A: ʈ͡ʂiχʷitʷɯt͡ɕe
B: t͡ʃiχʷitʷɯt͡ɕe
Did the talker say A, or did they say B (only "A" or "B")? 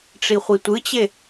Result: A